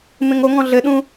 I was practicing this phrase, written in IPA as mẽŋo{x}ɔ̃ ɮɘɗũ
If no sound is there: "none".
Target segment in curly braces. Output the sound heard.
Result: ŋ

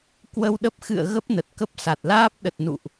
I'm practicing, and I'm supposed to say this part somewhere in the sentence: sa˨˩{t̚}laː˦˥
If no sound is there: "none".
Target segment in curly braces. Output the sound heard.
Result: t̚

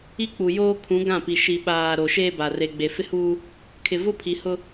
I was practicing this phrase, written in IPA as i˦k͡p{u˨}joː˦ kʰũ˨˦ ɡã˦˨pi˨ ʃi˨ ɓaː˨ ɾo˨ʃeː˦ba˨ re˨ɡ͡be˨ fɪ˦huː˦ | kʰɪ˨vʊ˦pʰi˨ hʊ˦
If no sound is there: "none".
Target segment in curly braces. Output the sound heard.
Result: u˨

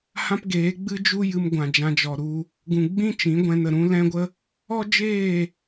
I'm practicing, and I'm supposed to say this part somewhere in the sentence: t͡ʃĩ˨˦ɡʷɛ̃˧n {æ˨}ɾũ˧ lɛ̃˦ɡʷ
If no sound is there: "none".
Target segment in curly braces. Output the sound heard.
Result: ə˨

